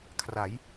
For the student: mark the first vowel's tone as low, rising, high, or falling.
rising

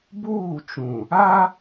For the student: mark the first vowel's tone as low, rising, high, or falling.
falling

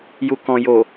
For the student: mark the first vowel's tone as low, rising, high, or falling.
low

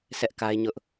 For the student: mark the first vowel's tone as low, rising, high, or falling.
high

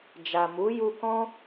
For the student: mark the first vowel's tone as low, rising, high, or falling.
low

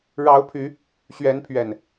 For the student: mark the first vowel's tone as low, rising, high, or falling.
rising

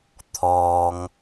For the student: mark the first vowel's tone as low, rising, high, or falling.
low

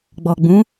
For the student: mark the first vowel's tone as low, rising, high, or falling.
low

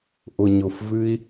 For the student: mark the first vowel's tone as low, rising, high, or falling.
low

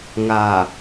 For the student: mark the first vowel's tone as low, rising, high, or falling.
low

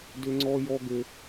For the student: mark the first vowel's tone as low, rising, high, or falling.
high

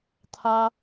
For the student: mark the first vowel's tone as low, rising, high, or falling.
high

